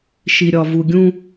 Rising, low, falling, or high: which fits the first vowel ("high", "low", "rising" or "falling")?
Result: low